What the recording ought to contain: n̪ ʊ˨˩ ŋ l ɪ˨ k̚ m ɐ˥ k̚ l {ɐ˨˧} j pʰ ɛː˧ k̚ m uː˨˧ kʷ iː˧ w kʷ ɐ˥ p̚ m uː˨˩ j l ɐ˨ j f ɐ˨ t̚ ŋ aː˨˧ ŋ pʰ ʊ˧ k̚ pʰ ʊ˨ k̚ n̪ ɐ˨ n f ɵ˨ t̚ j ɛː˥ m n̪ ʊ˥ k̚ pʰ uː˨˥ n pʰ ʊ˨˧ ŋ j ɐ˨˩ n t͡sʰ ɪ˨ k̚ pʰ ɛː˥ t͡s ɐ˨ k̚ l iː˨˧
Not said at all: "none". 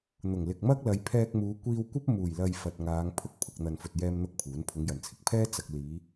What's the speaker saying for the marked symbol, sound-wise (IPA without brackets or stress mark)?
ɐ˨˧